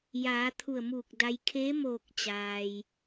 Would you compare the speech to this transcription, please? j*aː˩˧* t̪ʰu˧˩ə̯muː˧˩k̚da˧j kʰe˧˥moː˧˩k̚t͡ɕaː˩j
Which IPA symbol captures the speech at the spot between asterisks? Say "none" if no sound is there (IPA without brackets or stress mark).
aː˩˧